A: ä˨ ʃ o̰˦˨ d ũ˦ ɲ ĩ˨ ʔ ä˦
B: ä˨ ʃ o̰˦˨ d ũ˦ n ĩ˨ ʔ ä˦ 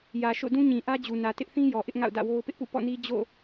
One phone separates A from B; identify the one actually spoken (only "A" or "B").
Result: A